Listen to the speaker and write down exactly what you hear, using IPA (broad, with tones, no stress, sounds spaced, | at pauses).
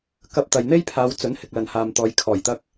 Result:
k ɐ˧ p̚ t̪ ɐ˨ j n̪ e˥ j pʰ aː˨˧ w t͡s ɵ˨˥ n h ɪ˨ k̚ l ɐ˨ n h aː˨ m t̪ ɔː˨˧ j kʰ ɔː˨˩ j t̪ ɐ˧ k̚